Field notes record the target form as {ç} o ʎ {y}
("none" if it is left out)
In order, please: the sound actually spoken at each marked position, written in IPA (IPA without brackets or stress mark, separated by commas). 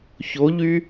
ç, y